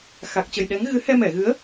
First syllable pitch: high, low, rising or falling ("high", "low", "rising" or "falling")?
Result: low